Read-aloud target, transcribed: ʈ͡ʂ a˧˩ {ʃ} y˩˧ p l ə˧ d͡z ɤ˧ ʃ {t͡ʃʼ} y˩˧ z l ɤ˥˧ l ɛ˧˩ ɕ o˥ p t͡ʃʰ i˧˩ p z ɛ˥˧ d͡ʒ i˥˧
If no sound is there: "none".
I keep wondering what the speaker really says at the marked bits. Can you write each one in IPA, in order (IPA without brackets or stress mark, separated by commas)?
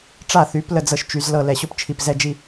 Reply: θ, t͡ʃ